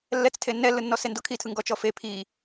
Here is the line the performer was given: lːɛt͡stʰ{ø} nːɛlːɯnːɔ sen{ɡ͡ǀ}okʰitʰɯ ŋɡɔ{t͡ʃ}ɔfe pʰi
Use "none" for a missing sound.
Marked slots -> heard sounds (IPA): e, d, t͡ʃ

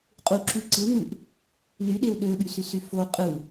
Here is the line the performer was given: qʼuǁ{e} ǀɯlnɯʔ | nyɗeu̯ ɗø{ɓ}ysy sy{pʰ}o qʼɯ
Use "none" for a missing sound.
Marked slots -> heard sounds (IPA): y, ɓ, f

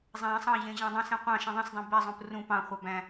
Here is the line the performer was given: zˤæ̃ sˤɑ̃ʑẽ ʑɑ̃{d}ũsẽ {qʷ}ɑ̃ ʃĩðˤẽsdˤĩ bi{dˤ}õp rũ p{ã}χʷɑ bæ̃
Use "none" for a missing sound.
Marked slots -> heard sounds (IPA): dˤ, qʷ, zˤ, ɑ̃

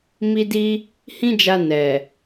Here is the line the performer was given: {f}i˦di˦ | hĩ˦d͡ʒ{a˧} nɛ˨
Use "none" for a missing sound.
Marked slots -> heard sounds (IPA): m, a˧

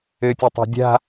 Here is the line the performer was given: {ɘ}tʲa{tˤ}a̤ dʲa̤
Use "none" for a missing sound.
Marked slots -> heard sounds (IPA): ɘ, tˤ

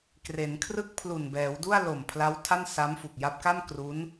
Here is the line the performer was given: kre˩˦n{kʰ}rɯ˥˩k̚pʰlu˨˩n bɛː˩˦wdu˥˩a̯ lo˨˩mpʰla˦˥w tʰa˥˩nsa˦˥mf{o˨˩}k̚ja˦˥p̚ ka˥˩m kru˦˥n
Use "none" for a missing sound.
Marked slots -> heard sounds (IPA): kʰ, u˨˩

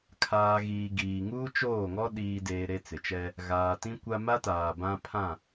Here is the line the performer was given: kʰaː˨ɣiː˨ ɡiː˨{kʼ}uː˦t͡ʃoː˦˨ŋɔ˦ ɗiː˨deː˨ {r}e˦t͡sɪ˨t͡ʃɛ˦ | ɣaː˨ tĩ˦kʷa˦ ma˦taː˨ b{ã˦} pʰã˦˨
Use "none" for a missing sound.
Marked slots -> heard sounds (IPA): ŋ, ɾ, ã˦

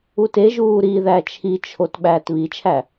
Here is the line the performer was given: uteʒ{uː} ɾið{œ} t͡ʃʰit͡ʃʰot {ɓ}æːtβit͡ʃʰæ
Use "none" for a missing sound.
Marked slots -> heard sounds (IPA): uː, æ, ɓ

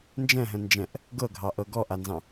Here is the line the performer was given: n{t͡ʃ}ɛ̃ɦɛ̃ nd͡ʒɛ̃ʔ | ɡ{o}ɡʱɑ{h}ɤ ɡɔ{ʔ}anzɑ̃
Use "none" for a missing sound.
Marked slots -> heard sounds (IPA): d͡ʒ, ɤ, ʔ, ʔ

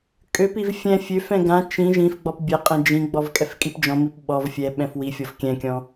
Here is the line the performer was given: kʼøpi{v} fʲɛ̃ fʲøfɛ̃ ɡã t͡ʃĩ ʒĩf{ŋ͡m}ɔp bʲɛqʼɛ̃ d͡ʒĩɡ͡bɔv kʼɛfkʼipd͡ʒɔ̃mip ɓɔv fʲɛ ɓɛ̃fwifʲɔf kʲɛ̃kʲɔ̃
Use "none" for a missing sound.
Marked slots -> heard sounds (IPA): v, ɡ͡b

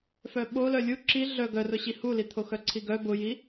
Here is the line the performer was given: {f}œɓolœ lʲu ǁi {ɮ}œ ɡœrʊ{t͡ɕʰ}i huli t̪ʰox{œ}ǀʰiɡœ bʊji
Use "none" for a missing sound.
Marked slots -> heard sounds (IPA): f, ɮ, ɕ, œ

